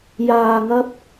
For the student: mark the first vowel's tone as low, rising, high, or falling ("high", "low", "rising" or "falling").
low